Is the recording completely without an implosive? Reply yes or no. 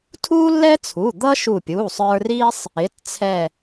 yes